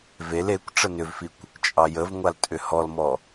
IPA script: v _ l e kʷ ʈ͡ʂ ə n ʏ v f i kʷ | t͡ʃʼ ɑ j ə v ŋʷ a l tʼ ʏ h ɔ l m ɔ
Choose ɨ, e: e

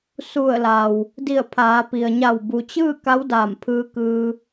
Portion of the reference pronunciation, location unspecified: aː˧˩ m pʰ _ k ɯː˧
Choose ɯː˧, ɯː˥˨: ɯː˧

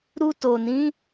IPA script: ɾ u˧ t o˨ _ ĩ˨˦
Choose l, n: n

